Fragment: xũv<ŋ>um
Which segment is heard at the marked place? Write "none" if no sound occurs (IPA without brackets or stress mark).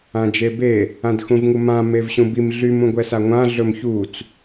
ŋ